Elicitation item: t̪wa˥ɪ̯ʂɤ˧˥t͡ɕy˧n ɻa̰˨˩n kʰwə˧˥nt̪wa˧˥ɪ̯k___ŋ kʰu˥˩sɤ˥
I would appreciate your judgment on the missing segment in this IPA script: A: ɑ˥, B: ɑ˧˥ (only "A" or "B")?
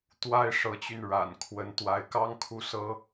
A